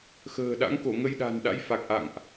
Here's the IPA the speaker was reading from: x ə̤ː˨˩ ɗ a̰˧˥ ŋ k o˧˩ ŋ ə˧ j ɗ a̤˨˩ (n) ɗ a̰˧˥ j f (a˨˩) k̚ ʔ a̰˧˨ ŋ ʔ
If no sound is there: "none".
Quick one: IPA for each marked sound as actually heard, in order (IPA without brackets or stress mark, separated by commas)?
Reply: n, a˨˩